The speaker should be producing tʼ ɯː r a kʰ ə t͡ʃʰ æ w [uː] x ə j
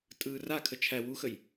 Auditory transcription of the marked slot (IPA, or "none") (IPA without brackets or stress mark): u